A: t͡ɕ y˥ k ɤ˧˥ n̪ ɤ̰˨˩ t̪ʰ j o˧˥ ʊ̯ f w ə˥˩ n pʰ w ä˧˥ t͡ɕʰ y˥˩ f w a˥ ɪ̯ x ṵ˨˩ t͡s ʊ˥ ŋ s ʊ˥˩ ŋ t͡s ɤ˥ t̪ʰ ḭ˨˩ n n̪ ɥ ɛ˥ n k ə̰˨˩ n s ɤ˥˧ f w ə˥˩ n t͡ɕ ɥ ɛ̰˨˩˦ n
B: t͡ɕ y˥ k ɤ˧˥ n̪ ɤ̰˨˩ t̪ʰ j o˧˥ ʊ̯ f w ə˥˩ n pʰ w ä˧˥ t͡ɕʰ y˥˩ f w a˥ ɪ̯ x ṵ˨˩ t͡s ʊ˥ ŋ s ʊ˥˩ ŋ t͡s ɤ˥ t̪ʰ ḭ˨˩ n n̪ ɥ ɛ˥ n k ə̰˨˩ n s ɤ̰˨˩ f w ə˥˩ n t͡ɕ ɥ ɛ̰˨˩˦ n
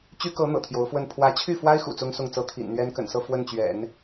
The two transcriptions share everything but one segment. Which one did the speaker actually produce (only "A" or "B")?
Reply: A